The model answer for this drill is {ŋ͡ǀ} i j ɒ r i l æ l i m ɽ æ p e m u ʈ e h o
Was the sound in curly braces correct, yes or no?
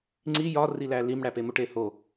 yes